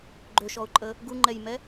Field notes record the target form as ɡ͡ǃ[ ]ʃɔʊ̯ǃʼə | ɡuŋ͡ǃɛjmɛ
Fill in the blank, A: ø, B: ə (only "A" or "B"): A